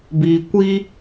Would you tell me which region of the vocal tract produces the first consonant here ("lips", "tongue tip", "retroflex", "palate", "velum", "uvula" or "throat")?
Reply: lips